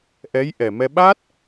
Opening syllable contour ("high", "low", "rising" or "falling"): rising